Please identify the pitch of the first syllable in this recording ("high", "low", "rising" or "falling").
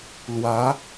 rising